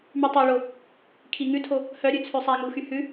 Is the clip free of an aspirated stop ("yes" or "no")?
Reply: no